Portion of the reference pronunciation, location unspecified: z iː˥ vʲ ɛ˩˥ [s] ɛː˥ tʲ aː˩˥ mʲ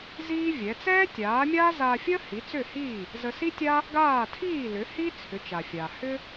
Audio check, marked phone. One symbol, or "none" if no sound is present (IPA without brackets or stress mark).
t͡s